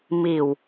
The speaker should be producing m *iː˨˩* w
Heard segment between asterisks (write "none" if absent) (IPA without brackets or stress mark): iː˨˩